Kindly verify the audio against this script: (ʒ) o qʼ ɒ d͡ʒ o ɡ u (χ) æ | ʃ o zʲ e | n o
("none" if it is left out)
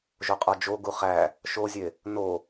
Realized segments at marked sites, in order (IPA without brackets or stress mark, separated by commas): ʒ, χ